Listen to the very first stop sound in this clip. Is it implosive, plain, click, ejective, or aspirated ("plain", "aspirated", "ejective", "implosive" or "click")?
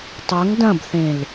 plain